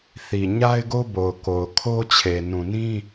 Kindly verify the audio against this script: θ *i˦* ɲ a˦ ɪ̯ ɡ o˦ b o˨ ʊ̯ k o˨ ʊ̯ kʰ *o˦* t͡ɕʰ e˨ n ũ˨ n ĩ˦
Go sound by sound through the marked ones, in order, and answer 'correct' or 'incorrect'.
incorrect: i˨, correct

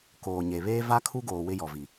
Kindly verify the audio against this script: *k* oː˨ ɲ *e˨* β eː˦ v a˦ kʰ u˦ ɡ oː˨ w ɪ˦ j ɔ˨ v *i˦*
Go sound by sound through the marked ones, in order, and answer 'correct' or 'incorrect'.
correct, correct, incorrect: i˨

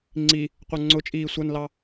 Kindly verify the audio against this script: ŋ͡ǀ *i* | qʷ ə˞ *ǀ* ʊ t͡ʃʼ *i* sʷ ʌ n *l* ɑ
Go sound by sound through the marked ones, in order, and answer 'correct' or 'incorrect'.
correct, incorrect: ŋ͡ǀ, incorrect: iː, correct

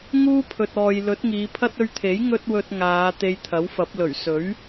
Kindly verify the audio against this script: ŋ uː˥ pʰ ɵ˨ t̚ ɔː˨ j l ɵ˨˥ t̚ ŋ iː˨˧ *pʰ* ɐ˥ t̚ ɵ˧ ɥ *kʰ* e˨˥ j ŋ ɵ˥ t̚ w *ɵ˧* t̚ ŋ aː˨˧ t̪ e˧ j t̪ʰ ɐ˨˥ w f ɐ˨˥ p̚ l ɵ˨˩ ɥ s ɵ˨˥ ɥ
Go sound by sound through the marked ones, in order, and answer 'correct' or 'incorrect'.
correct, incorrect: t̪ʰ, correct

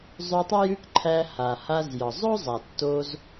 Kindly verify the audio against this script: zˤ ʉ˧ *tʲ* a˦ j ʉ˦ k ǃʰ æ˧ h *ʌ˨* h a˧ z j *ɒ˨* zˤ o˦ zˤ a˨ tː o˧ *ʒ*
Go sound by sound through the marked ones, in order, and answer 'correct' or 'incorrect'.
incorrect: tˤ, incorrect: a˨, correct, incorrect: z

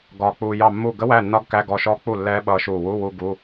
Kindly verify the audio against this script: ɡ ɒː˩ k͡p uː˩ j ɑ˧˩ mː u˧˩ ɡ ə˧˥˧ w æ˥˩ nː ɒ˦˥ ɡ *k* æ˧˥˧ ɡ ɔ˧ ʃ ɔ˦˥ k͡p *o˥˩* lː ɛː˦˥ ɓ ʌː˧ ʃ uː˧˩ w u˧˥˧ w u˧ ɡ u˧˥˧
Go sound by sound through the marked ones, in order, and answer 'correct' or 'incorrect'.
correct, incorrect: u˥˩

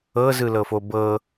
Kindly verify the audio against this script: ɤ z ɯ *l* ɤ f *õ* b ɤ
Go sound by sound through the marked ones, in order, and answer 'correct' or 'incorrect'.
correct, incorrect: o

